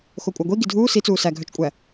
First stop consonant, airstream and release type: ejective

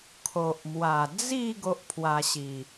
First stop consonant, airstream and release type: aspirated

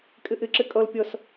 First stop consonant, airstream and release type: ejective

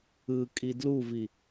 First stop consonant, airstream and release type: ejective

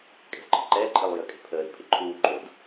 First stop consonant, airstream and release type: ejective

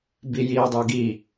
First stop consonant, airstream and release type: plain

